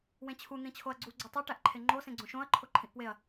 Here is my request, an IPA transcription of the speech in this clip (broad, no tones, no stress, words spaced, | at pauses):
wẽt͡ɕʰu n̪ĩt͡ɕʰoɐ̯ɡ͡ǀu ɡ͡ǀotˤu ʈæʔǃʰeŋ͡ǃo sẽɡ͡ǀõʃõɐ̯ ǃʰoǃʰĩʔpweɐ̯